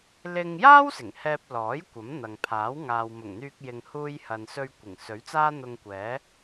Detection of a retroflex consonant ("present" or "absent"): absent